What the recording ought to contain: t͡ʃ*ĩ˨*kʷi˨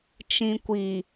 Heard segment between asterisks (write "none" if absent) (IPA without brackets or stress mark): ĩ˨